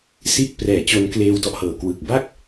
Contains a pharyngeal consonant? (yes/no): no